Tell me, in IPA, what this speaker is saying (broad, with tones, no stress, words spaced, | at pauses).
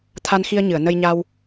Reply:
t̪ʰa˧nxi˧ə̯ɲɨ˨˩˨ə̯ nə˧jɲa˧w